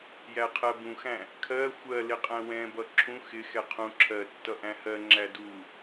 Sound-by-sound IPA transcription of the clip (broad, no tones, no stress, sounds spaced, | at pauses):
j æ qʰ ɜ b ũ x æ̃ | kʰ ɜ xʷ ɜ l ɪ qʼ æ̃ w ɛ̃ b ʌ ǁʰ ũ x ɪ x ɛ qʰ ũ ǁʰ ɜ tː ʌ ʔ æ̃ h ɜ ŋ͡ǁ æ d u